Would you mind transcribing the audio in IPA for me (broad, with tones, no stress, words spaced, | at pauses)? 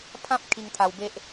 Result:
pʰã˦p̚ kʰi˧ŋt̪ʰa˧wbe˦ʔ